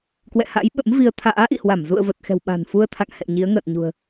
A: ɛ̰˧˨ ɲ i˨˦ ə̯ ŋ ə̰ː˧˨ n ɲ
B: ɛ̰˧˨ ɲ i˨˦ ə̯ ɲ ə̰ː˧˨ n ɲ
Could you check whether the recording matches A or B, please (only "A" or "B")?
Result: A